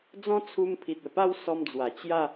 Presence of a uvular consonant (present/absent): absent